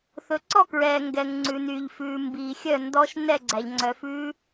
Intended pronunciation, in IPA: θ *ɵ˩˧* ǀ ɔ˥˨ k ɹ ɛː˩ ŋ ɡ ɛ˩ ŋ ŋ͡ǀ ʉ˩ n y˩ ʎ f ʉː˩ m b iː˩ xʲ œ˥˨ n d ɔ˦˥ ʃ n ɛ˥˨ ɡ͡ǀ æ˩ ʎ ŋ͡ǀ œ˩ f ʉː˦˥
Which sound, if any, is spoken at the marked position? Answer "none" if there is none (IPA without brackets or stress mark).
ɵ˩˧